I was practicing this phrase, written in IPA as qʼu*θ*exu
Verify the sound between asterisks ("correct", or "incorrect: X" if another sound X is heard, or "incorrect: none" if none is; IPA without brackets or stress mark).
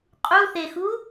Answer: correct